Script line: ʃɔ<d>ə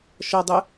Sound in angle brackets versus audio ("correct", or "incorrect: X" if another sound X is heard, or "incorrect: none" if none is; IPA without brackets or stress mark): incorrect: dˤ